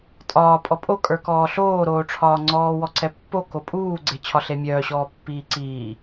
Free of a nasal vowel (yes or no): yes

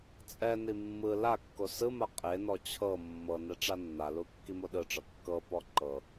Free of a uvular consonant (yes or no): no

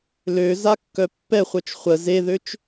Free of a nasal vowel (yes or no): yes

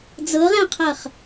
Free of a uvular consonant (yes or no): no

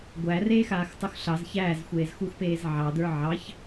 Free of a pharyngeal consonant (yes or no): no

